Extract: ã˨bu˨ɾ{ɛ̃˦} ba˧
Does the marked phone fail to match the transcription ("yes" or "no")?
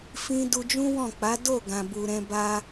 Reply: yes